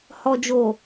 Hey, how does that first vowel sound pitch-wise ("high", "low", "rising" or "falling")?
low